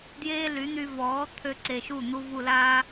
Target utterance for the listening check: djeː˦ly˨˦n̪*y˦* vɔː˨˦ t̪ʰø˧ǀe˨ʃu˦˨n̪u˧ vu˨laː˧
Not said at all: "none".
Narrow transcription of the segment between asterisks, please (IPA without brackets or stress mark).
y˧